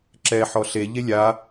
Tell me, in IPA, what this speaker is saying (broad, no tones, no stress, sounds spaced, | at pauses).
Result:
ǁ ɛ ħ ɔ ɬ e ʎ e lʲ a